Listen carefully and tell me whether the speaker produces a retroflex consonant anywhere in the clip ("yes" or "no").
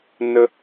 no